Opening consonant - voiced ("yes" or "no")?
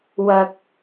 yes